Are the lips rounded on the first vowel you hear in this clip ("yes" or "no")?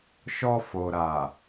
yes